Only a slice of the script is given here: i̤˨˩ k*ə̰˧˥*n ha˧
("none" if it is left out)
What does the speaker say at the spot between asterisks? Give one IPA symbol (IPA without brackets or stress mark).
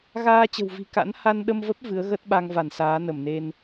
a̰˧˥